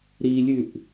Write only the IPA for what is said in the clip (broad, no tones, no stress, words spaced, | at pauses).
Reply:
ɾilʲʉʔ